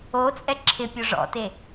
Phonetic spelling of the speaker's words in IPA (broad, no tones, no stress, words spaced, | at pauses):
ot͡sʼɛ ǁʰɪpʲo ʐɔ̰te